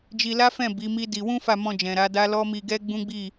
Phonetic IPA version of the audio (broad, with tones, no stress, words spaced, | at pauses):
d͡ʒi˧la˦fɛ̃˦˨ bi˨˦mi˦di˧ wũ˦fa˦˨mɔ̃˧d͡ʒɛ̃˨ ɾa˨˦da˦ lɔ˦mi˧ɡɛ˦ ɡ͡bũ˦ɡ͡bi˦˨